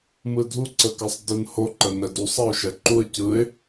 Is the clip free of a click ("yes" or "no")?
no